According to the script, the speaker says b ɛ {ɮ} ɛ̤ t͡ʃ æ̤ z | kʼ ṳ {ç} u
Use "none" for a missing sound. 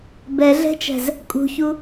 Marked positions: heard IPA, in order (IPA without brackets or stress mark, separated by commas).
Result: ɮ, ç